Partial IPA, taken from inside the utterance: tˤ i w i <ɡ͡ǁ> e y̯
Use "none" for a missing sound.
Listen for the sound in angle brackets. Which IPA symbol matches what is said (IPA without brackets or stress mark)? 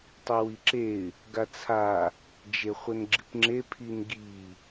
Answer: ǁ